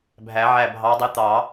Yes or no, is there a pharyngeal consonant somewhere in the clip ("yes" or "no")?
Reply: yes